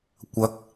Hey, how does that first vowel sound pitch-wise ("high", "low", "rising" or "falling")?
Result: rising